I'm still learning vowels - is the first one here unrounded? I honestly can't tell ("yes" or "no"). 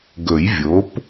no